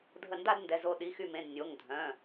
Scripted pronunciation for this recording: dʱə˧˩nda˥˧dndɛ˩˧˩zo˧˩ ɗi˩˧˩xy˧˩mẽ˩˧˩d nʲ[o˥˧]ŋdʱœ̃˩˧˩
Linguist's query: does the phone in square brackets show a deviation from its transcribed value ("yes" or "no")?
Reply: yes